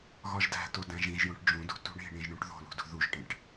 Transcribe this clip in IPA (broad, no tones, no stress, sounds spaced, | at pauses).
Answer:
ɣ ɒ ʒ d æ̤ t o d æ̃ ʒ ĩ ʒ j õ ʈ d͡ʒ ũ d ṳ t ṳ ɳ i̤ ɳ ĩ ʒ ɳ ũ ʈ ð o̤ l ṳ d ṳ ð u ʒ ʈ ẽ ʈ